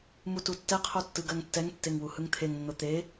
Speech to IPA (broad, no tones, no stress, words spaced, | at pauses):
mututːɛqʰo tːɯɡɜŋtːɛŋtːeŋ wuhɯŋt̪ʰeŋnːo t̪e